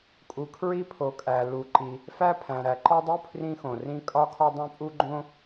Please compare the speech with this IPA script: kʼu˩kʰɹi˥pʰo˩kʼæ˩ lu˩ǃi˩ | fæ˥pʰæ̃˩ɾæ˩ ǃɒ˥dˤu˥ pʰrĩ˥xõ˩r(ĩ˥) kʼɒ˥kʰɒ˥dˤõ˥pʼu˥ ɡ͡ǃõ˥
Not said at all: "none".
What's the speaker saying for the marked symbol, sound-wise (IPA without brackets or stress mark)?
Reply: ĩ˥